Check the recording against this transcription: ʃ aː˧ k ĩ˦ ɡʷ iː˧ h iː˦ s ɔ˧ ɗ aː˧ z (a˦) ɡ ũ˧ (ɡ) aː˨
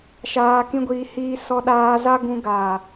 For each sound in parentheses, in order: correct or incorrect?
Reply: correct, correct

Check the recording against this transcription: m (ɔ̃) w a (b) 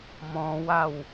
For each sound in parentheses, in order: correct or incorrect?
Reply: correct, incorrect: w

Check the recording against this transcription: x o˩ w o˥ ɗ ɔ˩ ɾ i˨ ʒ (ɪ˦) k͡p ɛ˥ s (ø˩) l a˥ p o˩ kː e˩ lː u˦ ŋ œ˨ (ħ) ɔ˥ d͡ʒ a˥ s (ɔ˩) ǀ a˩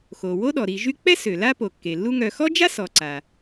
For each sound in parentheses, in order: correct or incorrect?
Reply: incorrect: y˦, correct, incorrect: x, incorrect: ɔ˨

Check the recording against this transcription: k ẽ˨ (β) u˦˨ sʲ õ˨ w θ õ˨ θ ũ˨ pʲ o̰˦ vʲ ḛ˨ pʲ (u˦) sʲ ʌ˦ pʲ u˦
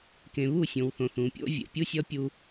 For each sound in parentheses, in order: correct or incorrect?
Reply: correct, correct

